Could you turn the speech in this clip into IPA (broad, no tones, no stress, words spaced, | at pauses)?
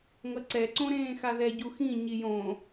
ŋʌǀɛ ǀõɾẽːxaðɛ ɟuxĩ ɲijõ